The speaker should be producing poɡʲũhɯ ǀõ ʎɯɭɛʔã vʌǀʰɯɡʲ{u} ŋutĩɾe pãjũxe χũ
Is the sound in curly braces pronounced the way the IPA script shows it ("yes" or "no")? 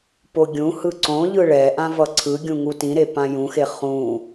no